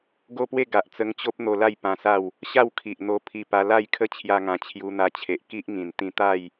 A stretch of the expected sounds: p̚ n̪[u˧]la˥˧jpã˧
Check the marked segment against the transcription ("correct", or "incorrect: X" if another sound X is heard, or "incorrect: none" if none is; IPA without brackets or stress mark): incorrect: o˧